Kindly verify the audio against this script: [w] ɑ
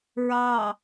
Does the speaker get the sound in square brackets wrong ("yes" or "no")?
yes